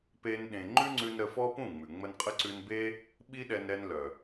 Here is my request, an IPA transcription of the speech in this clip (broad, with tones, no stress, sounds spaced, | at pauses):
p e˦ n ɗ ẽ˧ ŋ͡ǃ ʉ˦ ŋ͡ǀ ʉ˧ n ɾ ə˧ f ɔ˦ p ũ˦˨ ŋ͡m ʉ˨ ŋ͡m ə˧ n qʼ ə˦ ǀ ʉ˧ n b e˦ | ɓ i˦ ɗ ɛ˧ n ɾ ɛ˧ n l œ˨